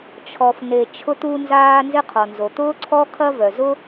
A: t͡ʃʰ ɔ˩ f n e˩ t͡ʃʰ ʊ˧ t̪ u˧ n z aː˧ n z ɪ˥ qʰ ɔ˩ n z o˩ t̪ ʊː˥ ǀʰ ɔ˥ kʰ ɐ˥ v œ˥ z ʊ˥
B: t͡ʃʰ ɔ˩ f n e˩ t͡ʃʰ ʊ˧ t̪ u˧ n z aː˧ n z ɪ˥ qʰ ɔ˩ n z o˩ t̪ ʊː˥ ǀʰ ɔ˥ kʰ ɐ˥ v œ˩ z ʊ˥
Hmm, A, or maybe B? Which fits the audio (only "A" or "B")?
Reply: B